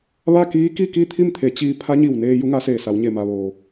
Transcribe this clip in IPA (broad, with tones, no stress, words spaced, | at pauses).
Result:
ʋa˥˨ kiː˧˥ ki˥˨ki˥˨t̪ʰi˥˨m t̪ʰe˩˧t͡ɕiː˧ pʰa˧˥ɲi˧˩w neː˧ ju˧˥ŋa˧˥seː˧˩sa˩˧w ɲe˧˩ma˩ʋoː˩